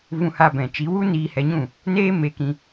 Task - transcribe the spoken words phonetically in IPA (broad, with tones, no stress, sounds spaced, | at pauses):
v ũ˧ h a˧ b ɛ̃˨ t͡ʃ i˨˦ w u˦ n iː˧ h ɛ˧ ɲ ũ˦˨ | n eː˦ m e˧ k ĩ˧